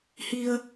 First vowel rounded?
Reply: no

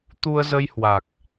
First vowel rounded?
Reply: yes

